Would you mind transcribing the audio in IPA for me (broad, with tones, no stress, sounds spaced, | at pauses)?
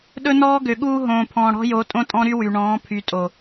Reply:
ɗ ɵ˦ n ɔː˦ ɡ ø˨ ɠ uː˦ ɦ õː˨ pʰ ɔ̃ː˨ ɽ ɔ̤˦ j o˨˦ tʼ õ˦ tʼ ɔ̃˦ ɾ y˦ w y˨ ɳ ɔ̃ː˨˦ pʰ y˨ tʼ o˨